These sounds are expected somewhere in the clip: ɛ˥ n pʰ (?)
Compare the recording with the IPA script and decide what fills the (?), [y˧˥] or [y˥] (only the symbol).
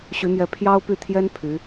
y˧˥